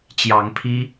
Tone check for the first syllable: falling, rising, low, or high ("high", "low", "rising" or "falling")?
rising